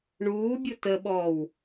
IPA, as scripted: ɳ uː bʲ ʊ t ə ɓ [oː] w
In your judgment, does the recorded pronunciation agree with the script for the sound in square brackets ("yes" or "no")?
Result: no